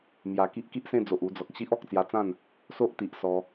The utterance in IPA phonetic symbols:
m j a˨˩ k i˦ ʔ k i˦ ʔ s ẽ˥˧ d͡z o˨ ʔ u˧ d͡z ɔ˨ k̚ ɕ i˦ ʔ ɔ˨ k̚ t͡s j a˧ t͡s ã˥˧ n | s o˦ ʔ t̪ i˨ ʔ s ɔ˧

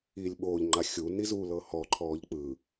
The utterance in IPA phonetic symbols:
iː lʲ ɓ oː ʎ ŋ͡ǃ a xʲ u n i z u l ɤ h ɔ ǃʰ ɔː ʎ k͡p ɯ

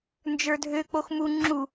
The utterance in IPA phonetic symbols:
n d͡ʒ ə˞ dʱ ø k͡p o x m u ŋ͡ǁ u

